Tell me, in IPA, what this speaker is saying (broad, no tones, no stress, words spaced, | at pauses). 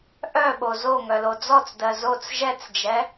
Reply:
ʔœɓo zoŋœlo d͡zɔt͡sdɜ zot͡s ʒɛt͡sd͡ʒɛ